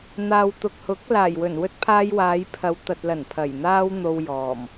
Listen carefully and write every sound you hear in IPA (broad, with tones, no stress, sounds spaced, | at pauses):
n̪ aː˨ w t̪ ʊ˨ k̚ h ʊ˨˥ k̚ l aː˨˩ j w ɵ˨˩ n w ɵ˥ t̚ pʰ aː˥ j w aː˨˧ j pʰ ɐ˨˧ w t̪ ɐ˨ t̚ l ɐ˨˩ n pʰ ɐ˨˩ j n̪ aː˥ w n̪ o˧ w j ɔː˨˩ m